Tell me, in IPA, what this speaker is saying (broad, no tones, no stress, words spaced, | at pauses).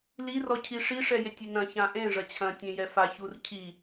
lirɔcʰi ʂiʂɛ jetʲinɐ̃ çãʔẽ ʐɐt͡ɕʰɐ̃ tʲẽjɛfa çurcʰi